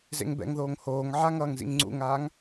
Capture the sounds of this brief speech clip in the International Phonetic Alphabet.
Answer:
z ḛ ŋ b ɛ̰ ŋ ð oː ŋ h oː ŋ ʕ a ŋ ʌː ŋ z ḭ ŋ ŋ͡ǀ ṵ ŋ aː ŋ

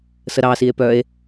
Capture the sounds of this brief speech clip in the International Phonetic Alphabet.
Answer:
s ə ɾ ɑ s i e̯ p œ e̯

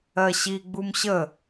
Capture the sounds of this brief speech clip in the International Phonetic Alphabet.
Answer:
ɜ ɕ i ɡ͡b u m ɕ ə

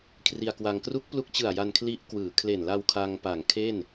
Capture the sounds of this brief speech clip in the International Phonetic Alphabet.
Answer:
kʰ r i˧ a̯ k w a˧ ŋ k r u˦˥ k̚ p l u˦˥ k̚ t͡ɕ ɯ˨˩ a̯ j a˧ n kʰ l i˦˥ ʔ k w ɯː˩˦ kʰ l e˨˩ n l a˧ w kʰ a˧ ŋ p a˨˩ ŋ kʰ e˥˩ n

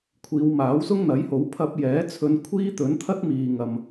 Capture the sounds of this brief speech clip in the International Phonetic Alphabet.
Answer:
kʷʰ iː˨˧ w m aː˨˥ w s ʊ˥ ŋ n̪ ɐ˨˥ j h o˨˥ w pʰ ɐ˧ p̚ j ɛː˨˥ t͡sʰ ɵ˨˧ n kʷʰ iː˥ t̪ ɵ˨˥ n t̪ʰ ɐ˥ t̚ m iː˨ ŋ ɐ˨ m

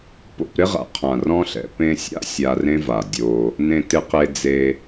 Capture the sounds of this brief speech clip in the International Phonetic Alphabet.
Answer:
p o̰˧ p ɾ ɪ˦ ʁ a̰˨ qʰ ã˨ r ɔ̃˦ ɬ ɛ̰˧ p ẽ˧ sʲ a̰˦ sʲ a˧ r ẽ˦ v a˨ dʲ o˧ | n ẽ˧ t ɪ˧ q e˧ d͡z e˧

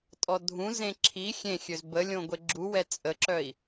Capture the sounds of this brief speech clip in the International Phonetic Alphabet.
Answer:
tʼ ɔ dʱ ũ z ẽ ǁʰ i xʲ ẽ xʲ ø z b ə lʲ õ ɡʷ e ɡ͡ǁ u w ɛ t͡sʼ ə ǁ œ i̯

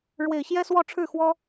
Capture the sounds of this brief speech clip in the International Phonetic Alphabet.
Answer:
ɻ w e˨˩ ɪ̯ ɕ j ɛ˥ s w ɔ˥˧ ʈ͡ʂʰ ɻ̩˥˩ x w ɔ˥

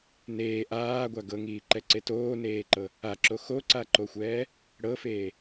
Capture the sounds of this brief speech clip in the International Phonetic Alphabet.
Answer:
n eː ʔ aː ɡʷ a ɡ ɤ ŋ iː ǃ ɛ ǀ e t oː n eː ǃ ɤ | a ǁ o x o ǀ a ǃ o xʷ ɛː | ɽ ɤ f eː

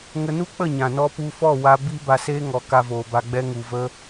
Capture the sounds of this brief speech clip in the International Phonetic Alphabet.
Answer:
ŋ ə˧ n u˦ k͡p ə˦˨ ɲ ã˨ n ɔ˧ p u˧ f ɔ˦˨ w a˧ b i˧ b a˧ s eː˦ ŋ ɔ˨˦ k a˧ v oː˨ b a˧ ɡ͡b ɛ˧ ŋ u˨ v ə˧

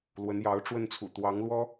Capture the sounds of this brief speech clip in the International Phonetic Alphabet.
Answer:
l w ə˧˥ n j ɑ˧˥ ʊ̯ ʈ͡ʂ w ə˥˩ n t͡sʰ ṵ˨˩ t̪ w ɑ˧˥ ŋ l w ɔ˥

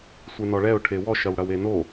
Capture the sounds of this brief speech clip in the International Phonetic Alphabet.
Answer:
sʷ e n ɔ ɭ ɛ ʊ̯ ʈʰ e w ɔ ʃ ɐ w ɽ ɐ w e n o

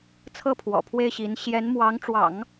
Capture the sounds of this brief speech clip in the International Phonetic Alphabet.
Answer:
t͡sʰ ɤ˥˩ pʰ w ɔ̰˨˩ pʰ w e˥˩ ɪ̯ ɕ i˧˥ n ɕ j ɛ˧˥ n m w ɑ˧˥ ŋ ʈ͡ʂ w ɑ̰˨˩˦ ŋ

